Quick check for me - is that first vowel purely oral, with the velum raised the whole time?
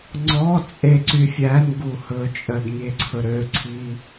yes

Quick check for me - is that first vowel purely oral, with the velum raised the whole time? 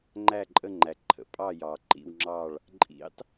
yes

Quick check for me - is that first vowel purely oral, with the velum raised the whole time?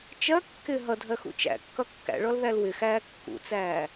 yes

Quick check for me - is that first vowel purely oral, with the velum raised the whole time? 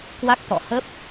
yes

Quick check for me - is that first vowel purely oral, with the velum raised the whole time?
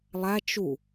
yes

